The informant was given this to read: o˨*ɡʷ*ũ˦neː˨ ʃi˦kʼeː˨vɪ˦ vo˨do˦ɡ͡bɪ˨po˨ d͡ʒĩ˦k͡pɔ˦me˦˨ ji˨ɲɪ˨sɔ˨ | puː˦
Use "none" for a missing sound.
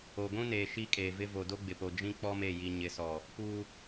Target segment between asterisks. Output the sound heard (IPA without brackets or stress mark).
ɡʷ